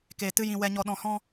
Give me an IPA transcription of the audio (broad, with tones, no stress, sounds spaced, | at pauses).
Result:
k eː˨ t ɨ˦ j ĩ˧ w ɛ˧ ɲ ɔ˧ ɗ ɔ̃˨ h ɔ̃˦